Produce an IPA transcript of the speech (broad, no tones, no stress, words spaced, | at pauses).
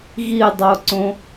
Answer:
ɣidˤoǀõ